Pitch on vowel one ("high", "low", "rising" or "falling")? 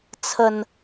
low